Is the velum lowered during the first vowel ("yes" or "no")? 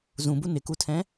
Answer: yes